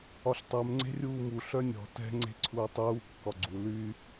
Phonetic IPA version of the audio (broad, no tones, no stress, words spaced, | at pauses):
ɒɬtˤɛm ŋ͡ǀe̤rʲuːmu ɬœnʲɔ̤ tɛ̤ ŋ͡ǀe̤ǀʰuːtˤuː kːɒɡ͡ǀu ly